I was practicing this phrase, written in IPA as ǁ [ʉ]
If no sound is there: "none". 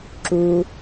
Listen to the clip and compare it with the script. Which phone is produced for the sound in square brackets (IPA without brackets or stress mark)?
u